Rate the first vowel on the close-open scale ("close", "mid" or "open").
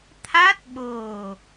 open